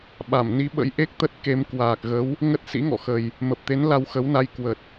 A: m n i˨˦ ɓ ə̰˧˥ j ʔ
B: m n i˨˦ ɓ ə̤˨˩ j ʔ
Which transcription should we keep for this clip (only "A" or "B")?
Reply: A